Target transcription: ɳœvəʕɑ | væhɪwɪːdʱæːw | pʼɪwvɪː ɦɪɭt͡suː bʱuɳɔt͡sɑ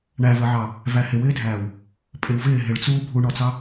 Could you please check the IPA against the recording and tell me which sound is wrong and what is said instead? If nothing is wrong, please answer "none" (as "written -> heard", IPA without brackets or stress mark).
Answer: œ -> æ